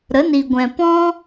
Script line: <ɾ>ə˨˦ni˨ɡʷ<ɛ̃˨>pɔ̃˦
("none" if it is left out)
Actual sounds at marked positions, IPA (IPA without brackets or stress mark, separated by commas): ɾ, ɛ̃˨